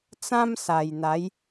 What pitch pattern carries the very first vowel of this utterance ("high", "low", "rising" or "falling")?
high